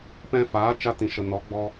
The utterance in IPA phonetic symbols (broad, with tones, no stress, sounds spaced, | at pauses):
p ɛ̃˧ f aː˨˦ t͡ʃ a˧ t ĩ˨ ʃ ə˨ n ɔ˨˦ ɡ͡b ɔ˧